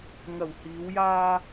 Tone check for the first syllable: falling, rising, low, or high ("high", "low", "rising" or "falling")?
low